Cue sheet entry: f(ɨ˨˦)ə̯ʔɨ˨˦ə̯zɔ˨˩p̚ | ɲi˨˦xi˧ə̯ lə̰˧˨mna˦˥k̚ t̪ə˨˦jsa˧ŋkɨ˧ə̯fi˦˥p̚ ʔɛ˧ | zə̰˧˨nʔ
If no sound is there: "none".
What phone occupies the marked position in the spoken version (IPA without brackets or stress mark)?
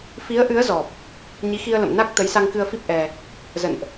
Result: i˨˦